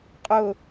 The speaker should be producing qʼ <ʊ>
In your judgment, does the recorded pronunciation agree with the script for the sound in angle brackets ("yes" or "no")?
yes